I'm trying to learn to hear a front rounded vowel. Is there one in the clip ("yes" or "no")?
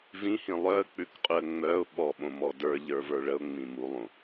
yes